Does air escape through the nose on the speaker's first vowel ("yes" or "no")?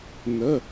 no